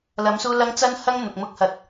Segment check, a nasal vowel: absent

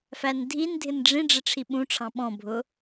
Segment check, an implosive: present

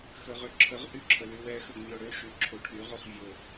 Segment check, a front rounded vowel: present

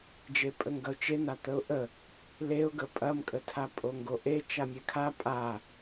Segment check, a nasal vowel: absent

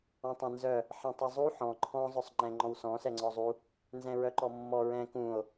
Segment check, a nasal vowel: present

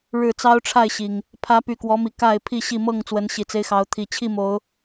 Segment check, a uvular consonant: absent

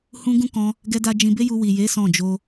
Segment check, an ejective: absent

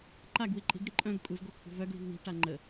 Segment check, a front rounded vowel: present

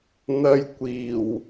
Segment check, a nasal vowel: absent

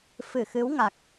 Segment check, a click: absent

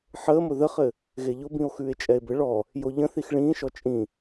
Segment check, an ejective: present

